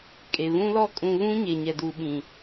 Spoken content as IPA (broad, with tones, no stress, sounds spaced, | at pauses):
kʼ e˨ β ũ˦ l ɔ˦ kʼ ũ˨ β ũ˦ ɲ e˨ ɲ ɛ˨ d uː˨ ɓ ĩ˨